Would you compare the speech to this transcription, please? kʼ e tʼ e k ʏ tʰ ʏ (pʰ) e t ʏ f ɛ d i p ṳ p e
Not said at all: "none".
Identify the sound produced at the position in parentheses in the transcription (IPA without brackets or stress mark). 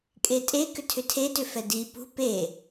tʰ